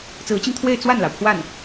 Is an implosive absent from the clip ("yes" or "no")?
yes